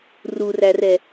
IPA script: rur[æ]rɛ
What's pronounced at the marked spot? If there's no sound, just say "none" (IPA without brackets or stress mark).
æ